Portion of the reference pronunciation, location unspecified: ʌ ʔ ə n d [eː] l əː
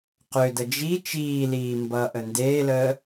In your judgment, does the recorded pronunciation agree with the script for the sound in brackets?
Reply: yes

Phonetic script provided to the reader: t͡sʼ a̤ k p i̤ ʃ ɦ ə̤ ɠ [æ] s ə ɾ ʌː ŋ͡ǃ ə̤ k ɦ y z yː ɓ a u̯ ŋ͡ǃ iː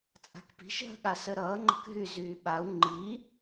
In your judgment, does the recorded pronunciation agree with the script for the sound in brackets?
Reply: no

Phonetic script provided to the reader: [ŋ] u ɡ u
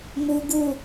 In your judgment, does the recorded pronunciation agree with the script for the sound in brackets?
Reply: no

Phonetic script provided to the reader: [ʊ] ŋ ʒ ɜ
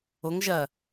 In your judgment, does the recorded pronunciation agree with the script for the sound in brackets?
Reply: yes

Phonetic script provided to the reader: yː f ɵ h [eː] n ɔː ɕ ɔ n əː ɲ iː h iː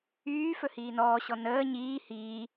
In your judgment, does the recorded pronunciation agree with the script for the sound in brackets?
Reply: no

